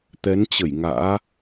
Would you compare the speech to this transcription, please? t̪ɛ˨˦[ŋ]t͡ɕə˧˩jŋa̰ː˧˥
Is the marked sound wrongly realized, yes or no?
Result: yes